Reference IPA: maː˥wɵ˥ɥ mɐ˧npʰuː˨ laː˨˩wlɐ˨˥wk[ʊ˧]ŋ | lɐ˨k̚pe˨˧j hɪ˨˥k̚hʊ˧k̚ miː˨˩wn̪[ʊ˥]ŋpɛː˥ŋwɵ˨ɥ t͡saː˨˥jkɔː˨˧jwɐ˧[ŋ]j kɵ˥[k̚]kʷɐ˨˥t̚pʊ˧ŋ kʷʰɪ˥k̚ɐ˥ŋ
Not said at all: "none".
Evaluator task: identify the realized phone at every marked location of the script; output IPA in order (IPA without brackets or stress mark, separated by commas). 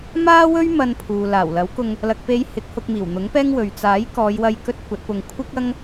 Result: ʊ˧, ʊ˨˥, none, t̚